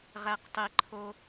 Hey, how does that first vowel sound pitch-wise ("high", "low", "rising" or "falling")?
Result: low